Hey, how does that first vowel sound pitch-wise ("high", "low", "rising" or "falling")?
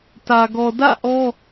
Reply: low